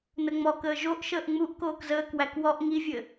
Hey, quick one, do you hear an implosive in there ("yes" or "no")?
no